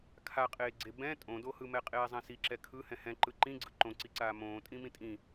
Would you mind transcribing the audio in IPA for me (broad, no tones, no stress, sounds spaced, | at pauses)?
kʰ a qʼ eː ɡ͡ǀ e b ɛ̃ tʼ õ d o h ɯ m ɛ qʼ eː zˤ ɛ̃ s i ǁ ɛ kʰ ɯ h ɛ̃ h ɛ̃ ǃ ɯ ǃ ĩ ɡ͡ǀ ɯ ǃ õ ǀ i ǀ aː m õː tʼ ĩ m ĩ tʼ ĩ